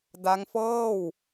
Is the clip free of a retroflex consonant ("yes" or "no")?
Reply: yes